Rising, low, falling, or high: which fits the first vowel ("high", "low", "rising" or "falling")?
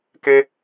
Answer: high